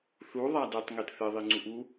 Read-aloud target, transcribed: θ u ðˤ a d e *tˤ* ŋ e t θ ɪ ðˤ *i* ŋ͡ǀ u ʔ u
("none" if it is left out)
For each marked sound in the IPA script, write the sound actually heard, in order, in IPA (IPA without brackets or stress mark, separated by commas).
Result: tˤ, i